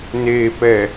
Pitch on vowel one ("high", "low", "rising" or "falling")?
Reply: low